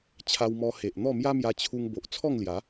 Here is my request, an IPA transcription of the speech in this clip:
t͡ɕʰ a˧ w m ɔ˧ h e˨ ʔ n̪ ɔ˥˧ m j a˦ m j a˧ t͡ɕʰ u˧ ŋ b o˨ ʔ t͡sʰ ɔ˥˧ ŋ l j a˨˦

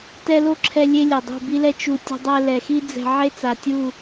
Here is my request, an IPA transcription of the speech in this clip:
t ɛ˦ l o˦ ǁʰ ɛ˧ lʲ e˦ lʲ ɐ˨ dˤ ṳ˦˨ b i˦ l ɛ˦ t͡ʃ u˧ tʲ o̤˧ dˤ ɛ˧ l ɛ˨ x i˦ d͡z ɛ̤˧ ʕ e˦ t͡s a˨ tʲ u˦˨

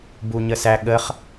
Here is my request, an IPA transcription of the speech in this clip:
b u ɲ ə s æ ɠ ə χ

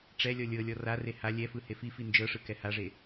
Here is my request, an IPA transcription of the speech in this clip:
ʈ͡ʂ ɛ lʲ ɔ lʲ ɤ lʲ ɔ r a r e h a lʲ ɛ f ɯ h e f i f i n d͡ʒ ɤ ʂ ɯ k ɛ h a ʐ e

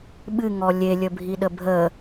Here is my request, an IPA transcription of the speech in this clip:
ɓ ɨ ŋ ɔ lʲ e lʲ ə bʱ i ɗ ə bʱ ə

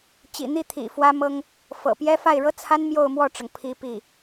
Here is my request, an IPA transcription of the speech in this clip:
t͡ɕ ḭ˨˩ n̪ i˥˩ t̪ʰ ḭ˨˩ f w ä˥ m ɤ˥ ŋ | f ɤ̰˨˩ p j ɛ˥ f a˥˩ ɪ̯ ɻ ɤ˥ t͡sʰ a˥ n m j o˥˧ ʊ̯ m w ɔ˥˩ ʈ͡ʂ ɤ˩ ŋ pʰ i˥ p i˥˩

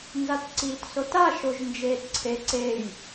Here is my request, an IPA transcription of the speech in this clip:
n z a t ǀ iː t s o t a ʃ o ʒ n d͡ʒ eː t ǀʰ e ǀ e j

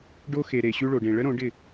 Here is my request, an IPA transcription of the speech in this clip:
ɖ o˦ x e˨ ɾ e˨ ɕ ʉ˦ ɭ o˨ ɖ ẽ˨ ɭ ə˦ ɾ õ˨˦ ɖ ɪ˦˨

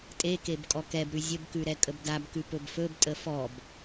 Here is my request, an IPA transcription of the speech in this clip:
tʼ e k e b kʼ ɔ k ɛ b ɾ ʉ zʲ ə b k ʉ ɾ ɛ kʼ ə b d a b k ʉ p ɵ b f ɵ b tʼ ə f ɔ b

